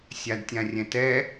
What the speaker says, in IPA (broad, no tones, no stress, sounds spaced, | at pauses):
sʲ a d tʲ ã rʲ ɛ̃ t ɛ